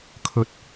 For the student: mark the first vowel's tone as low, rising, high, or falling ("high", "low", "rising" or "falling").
low